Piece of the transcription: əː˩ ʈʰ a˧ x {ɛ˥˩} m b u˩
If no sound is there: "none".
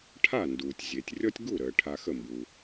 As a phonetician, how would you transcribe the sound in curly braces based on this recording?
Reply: ə˥˩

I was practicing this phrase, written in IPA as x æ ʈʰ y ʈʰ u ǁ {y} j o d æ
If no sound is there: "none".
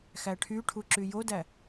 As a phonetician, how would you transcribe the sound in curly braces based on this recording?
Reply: y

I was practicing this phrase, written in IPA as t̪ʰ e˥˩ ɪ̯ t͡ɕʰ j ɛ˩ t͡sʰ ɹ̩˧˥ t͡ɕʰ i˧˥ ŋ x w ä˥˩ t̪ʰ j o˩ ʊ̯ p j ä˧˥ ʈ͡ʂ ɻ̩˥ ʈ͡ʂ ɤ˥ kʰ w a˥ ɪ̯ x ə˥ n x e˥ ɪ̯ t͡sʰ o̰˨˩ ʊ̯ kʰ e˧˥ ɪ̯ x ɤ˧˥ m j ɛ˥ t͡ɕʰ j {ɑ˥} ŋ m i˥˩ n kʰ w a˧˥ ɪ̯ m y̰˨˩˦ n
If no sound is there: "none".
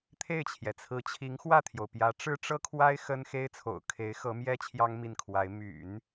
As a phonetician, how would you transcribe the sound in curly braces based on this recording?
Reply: ɑ˥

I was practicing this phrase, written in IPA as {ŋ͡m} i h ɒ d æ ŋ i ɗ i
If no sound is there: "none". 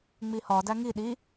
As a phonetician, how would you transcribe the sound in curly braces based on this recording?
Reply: ŋ͡m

